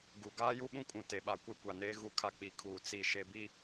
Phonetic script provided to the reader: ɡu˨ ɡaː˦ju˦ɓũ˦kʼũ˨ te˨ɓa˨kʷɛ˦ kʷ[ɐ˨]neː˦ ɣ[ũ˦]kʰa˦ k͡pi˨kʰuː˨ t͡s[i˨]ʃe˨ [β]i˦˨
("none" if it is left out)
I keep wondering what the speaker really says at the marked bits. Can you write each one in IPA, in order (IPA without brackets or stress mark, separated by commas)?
a˨, u˦, i˨, b